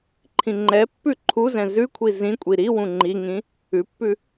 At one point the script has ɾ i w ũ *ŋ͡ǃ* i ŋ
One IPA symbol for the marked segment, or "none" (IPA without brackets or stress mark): ŋ͡ǃ